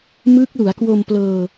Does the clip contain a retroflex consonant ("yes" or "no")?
no